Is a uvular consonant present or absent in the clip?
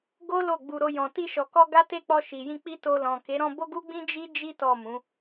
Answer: absent